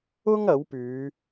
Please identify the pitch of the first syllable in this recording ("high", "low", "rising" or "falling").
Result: high